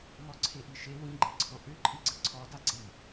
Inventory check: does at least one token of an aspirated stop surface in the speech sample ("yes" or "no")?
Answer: yes